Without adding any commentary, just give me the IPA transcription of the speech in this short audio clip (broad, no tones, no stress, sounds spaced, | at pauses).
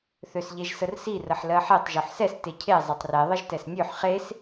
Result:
θ ø s ʎ e ʒ s ə r s i r ə ħ l ɜ ħ e tˤ ʒ o ħ s ɛ s t e cʰ e zˤ e tˤ r e ðˤ ə ʒ t ɛ s nʲ ø ħ χ e s